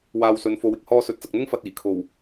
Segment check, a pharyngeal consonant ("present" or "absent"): absent